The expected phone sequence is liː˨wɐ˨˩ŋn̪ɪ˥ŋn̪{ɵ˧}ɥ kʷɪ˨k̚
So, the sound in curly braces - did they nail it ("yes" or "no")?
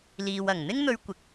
yes